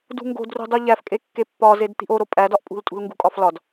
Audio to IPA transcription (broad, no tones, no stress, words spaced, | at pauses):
dṳŋɡo̤d rṳdˤuʎæfkʼe kːepːɒzed t̪i̤ʔoɾo pʼædɒʔpʼṳltʼṳl ŋɡṳkʼɒflɒd